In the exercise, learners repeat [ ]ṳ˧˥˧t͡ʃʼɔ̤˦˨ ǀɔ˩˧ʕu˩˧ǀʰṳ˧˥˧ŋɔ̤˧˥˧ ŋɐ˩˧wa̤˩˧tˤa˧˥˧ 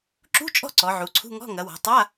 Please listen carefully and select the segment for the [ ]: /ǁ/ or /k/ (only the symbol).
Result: ǁ